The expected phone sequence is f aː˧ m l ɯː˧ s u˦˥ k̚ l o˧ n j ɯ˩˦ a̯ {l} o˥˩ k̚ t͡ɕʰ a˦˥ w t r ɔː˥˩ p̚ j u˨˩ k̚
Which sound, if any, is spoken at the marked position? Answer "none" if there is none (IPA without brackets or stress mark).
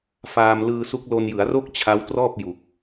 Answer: r